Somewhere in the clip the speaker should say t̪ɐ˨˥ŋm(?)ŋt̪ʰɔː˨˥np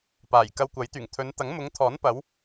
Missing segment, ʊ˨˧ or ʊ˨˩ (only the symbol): ʊ˨˧